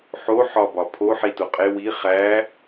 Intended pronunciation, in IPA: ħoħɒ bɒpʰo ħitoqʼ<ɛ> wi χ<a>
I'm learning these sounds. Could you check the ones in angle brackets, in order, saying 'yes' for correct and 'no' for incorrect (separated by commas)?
no, no